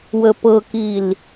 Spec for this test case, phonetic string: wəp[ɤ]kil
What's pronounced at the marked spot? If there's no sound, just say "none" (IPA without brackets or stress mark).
ɤ